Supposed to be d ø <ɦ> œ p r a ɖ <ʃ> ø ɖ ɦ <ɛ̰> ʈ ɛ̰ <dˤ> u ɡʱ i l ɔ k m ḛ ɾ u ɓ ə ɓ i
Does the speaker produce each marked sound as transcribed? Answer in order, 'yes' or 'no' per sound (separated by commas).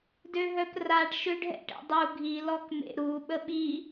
yes, yes, yes, yes